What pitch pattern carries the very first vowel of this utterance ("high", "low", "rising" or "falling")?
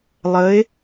rising